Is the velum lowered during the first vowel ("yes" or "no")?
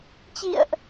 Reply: no